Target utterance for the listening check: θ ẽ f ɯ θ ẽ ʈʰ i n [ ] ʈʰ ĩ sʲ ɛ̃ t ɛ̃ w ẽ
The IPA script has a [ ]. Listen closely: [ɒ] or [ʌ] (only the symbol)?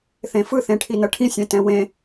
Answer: ʌ